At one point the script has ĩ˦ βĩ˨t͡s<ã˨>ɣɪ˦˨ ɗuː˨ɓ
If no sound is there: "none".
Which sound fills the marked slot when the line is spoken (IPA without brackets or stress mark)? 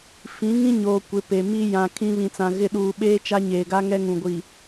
ã˨